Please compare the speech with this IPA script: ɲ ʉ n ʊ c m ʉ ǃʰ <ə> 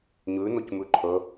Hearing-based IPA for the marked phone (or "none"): ə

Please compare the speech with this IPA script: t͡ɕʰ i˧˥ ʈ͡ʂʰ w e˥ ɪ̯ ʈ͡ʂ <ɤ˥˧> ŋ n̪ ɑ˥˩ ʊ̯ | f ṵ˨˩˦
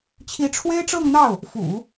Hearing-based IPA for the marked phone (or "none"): ɤ˥˧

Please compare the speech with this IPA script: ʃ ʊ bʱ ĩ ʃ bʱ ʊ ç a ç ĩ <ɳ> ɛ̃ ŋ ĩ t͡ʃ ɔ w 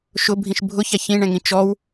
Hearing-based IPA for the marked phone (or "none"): ɳ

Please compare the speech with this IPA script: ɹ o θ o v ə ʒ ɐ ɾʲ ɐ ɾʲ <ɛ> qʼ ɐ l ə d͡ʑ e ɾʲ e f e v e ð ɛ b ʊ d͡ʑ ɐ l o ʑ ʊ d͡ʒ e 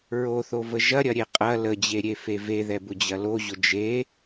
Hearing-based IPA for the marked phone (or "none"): e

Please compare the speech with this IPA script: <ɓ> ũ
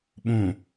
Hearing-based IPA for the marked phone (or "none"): ɓ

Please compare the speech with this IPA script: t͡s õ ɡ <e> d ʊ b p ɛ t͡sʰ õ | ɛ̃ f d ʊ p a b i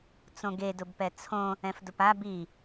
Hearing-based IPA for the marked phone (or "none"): e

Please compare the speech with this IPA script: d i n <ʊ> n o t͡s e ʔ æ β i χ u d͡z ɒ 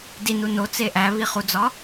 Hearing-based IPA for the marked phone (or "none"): u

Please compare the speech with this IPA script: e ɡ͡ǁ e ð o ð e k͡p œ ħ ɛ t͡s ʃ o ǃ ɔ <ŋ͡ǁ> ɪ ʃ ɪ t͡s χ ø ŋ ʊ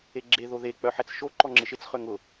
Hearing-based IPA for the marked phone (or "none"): ŋ͡ǁ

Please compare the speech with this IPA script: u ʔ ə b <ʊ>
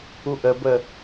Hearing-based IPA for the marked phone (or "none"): ə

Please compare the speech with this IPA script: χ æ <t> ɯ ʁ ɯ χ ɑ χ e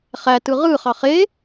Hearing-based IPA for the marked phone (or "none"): t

